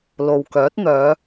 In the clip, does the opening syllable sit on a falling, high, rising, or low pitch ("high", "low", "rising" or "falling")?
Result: low